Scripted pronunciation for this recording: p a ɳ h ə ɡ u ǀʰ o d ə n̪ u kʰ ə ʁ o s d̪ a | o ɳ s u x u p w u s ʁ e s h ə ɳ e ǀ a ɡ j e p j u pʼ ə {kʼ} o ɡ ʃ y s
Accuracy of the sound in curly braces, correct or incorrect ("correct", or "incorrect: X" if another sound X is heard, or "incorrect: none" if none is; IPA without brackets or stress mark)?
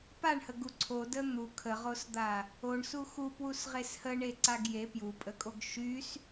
correct